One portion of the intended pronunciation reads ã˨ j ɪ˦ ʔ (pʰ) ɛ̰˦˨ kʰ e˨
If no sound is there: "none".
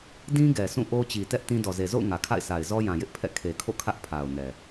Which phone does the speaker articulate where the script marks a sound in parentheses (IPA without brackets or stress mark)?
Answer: pʰ